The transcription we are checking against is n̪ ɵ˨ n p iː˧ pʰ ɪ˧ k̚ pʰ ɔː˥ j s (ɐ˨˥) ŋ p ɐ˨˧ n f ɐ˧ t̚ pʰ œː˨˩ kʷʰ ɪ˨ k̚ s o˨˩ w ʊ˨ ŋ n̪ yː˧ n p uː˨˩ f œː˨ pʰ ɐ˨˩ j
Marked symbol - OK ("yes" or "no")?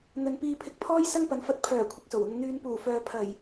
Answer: no